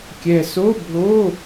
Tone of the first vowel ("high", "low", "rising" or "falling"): low